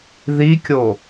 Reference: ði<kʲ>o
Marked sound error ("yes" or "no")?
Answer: no